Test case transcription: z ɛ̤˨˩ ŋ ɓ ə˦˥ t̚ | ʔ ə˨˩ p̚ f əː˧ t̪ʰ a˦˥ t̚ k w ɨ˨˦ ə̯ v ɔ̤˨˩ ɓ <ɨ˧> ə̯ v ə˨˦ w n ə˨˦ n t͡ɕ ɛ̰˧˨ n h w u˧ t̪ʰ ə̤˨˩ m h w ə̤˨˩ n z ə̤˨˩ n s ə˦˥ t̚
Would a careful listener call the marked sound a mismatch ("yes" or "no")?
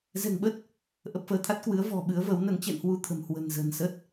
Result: yes